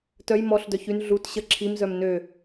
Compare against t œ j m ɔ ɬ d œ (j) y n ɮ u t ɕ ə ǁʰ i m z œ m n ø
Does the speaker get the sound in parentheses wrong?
yes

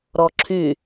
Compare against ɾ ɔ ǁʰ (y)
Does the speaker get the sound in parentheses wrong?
no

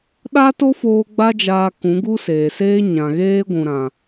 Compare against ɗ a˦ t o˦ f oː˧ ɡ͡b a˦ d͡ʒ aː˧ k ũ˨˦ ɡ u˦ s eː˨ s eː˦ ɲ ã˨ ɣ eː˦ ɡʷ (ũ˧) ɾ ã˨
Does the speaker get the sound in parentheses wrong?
yes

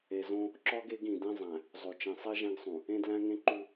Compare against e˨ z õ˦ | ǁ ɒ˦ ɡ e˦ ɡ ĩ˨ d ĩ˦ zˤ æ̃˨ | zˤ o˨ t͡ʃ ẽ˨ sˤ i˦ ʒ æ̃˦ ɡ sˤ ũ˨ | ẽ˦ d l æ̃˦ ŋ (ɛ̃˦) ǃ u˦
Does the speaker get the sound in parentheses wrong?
yes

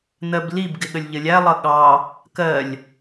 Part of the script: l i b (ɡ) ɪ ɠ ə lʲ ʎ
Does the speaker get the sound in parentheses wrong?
no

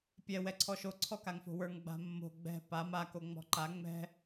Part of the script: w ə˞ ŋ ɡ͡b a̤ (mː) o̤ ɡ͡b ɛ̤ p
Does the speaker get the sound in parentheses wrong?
no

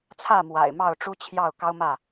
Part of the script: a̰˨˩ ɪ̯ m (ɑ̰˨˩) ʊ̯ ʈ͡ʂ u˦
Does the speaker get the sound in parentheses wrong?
yes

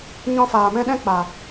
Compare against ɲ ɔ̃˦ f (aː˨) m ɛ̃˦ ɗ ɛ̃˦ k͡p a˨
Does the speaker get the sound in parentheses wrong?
no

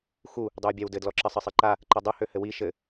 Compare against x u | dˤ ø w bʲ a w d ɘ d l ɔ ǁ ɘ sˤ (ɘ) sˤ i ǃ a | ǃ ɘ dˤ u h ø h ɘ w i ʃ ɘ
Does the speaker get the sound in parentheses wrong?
no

